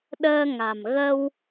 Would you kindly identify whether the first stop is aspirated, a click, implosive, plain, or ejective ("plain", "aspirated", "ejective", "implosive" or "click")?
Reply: implosive